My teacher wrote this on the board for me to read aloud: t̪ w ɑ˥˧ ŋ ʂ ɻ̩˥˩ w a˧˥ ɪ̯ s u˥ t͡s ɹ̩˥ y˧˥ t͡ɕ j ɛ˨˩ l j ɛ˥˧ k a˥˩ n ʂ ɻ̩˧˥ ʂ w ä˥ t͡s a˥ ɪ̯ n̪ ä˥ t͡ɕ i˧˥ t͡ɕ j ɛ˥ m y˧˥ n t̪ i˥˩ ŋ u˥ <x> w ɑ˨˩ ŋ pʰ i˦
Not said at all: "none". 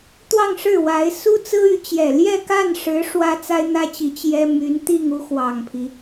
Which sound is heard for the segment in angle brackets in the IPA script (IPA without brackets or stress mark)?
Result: x